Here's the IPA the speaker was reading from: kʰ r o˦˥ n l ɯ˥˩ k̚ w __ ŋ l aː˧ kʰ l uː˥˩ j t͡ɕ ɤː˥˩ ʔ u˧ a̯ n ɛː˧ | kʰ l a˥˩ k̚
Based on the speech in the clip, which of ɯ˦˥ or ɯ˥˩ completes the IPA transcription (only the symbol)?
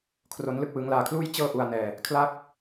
ɯ˦˥